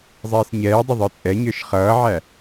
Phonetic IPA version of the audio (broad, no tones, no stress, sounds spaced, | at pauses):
zˤ iː s ɲ ɛː dˤ ɪ ðˤ ə˞ t͡sʼ ɛ ɲ ə˞ ʃ χ ʌː ʕ æ